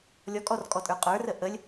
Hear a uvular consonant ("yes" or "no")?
yes